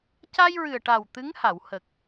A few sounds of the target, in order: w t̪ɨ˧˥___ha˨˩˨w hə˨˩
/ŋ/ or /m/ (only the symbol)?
ŋ